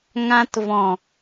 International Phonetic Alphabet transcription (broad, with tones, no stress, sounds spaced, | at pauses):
ŋ ã˧ t v ɔ̃˨